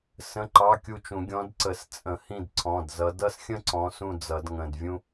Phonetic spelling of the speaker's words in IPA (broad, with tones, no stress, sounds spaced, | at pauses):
s ə̃˧˥˧ ǃ ɑ˧˥˧ kʲ u˦˨ t͡ʃ ũ˨˩˦ ɡʲ ɔ̃˨˦ d ǀ ə˨˩˦ s t͡sʼ ə̃˨˩˦ h ĩ˦˨ d ǀʰ ɔ̃˩˧˩ d z ʌ˨˦ d ʌ˥ s xʲ ə̃˥ ǀ ɔ̃˨˦ s ũ˦˨ d͡z ʌ˨˩˦ d ŋ ə̃˩˧˩ d vʲ ũ˥